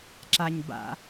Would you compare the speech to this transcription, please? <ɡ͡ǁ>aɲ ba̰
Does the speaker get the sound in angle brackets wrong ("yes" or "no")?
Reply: yes